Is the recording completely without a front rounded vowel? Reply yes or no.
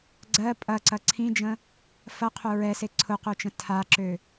no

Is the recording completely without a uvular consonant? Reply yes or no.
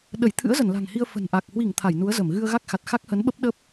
yes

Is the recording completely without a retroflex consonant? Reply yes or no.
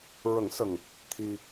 yes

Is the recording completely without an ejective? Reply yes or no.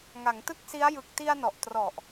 yes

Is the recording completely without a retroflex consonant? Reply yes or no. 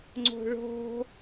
no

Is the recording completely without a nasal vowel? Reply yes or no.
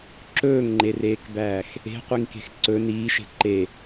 yes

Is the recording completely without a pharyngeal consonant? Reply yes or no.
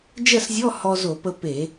yes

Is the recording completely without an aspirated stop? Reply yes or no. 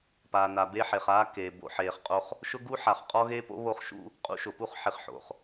yes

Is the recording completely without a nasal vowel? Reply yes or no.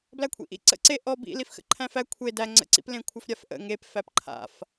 no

